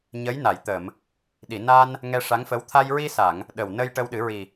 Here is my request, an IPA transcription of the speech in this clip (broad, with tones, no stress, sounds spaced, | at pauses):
ɲ ə˧˥ j n a˨˩˨ j t̪ ə˨˩˨ m | ɗ i˨˩˨ n a˧ n | ŋ ɛ˧ ʂ a˧˥ ŋ f ə˧˥ w t̪ʰ a˧ j ɹ i˧ s a˨˩˨ ŋ | ɗ ə˨˩ w n ə˧ j ʈ ə˧ w ɗ ɨ˨˩˦ ɹ i˨˩